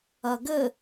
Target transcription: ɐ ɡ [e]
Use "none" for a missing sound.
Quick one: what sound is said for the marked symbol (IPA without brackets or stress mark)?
ɘ